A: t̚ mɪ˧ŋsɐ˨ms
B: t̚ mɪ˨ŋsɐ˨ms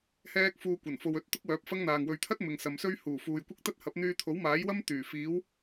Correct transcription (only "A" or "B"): B